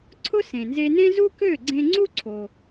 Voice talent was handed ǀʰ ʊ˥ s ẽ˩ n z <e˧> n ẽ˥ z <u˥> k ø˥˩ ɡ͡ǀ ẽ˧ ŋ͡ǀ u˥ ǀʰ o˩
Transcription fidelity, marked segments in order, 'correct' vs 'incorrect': correct, correct

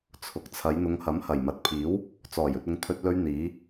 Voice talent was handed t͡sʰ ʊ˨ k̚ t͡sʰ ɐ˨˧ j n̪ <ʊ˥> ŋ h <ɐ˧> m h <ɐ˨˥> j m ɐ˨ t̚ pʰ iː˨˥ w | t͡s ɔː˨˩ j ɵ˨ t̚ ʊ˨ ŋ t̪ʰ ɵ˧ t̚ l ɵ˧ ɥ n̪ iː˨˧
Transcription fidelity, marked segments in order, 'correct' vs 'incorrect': incorrect: ʊ˨˧, incorrect: ɐ˨˥, incorrect: ɐ˨˩

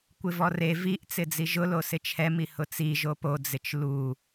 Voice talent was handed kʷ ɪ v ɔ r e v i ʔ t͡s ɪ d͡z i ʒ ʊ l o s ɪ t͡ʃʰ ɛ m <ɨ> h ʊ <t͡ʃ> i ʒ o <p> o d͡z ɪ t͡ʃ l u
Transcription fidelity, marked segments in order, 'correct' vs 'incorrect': incorrect: i, incorrect: t͡s, correct

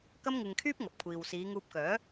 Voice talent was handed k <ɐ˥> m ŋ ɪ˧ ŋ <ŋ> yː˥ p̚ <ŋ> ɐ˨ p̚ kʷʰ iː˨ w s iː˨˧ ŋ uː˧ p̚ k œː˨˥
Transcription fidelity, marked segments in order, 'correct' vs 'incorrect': correct, incorrect: kʰ, correct

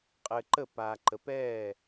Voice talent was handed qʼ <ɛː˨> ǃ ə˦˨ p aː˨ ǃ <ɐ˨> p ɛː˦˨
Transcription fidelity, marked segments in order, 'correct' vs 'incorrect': incorrect: ɘː˨, incorrect: ə˨

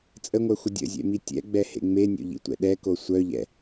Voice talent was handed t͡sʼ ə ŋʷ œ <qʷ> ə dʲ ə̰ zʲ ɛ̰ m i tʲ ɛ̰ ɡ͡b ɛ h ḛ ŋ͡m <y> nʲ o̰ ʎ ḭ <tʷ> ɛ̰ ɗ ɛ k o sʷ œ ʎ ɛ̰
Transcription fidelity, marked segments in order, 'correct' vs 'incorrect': incorrect: xʷ, incorrect: e, correct

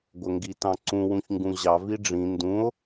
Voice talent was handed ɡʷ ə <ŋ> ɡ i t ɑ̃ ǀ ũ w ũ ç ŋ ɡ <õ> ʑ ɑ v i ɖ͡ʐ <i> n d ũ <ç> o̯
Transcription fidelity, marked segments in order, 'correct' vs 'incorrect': correct, incorrect: ũ, incorrect: ĩ, incorrect: none

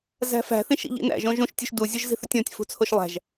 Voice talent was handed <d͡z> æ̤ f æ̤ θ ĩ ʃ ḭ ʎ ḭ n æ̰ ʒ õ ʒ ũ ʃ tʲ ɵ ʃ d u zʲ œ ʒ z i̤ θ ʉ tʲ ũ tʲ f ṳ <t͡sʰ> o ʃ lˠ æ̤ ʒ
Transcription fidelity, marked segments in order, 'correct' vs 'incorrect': incorrect: z, correct

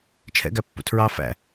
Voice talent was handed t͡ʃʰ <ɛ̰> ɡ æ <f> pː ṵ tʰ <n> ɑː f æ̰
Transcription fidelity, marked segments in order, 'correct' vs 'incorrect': correct, incorrect: none, incorrect: ɹ

